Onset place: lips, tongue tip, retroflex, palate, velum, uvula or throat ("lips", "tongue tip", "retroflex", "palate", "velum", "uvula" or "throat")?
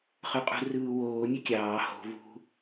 uvula